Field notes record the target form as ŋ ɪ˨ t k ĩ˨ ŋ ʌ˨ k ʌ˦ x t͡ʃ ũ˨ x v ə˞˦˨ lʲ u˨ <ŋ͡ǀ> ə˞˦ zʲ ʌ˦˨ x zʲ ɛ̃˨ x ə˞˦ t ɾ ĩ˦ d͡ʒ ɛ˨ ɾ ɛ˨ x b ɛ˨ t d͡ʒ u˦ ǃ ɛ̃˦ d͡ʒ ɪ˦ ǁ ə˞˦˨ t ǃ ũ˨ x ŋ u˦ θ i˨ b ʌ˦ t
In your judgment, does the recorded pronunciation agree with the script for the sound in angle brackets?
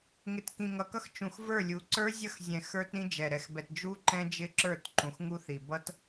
no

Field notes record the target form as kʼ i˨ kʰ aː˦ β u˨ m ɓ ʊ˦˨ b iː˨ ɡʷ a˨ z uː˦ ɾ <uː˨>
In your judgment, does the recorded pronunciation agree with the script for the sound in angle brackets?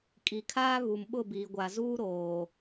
no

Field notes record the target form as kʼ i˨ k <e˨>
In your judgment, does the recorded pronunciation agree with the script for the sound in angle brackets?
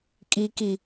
no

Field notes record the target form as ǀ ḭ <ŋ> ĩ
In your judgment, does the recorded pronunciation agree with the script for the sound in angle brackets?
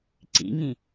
yes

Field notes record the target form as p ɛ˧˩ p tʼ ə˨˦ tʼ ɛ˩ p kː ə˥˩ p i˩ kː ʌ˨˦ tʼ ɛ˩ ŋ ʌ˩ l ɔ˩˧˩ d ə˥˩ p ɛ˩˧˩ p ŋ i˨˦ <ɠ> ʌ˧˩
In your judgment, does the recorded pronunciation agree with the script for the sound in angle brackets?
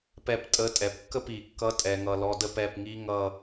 no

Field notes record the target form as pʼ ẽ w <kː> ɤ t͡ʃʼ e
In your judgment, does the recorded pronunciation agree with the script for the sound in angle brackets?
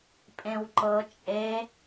no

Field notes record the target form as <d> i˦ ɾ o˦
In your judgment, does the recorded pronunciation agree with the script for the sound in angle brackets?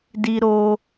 yes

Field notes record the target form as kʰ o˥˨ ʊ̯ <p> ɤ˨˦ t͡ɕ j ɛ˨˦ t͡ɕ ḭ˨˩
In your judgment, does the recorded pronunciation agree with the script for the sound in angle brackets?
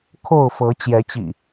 no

